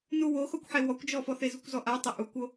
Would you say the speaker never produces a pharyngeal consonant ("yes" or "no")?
no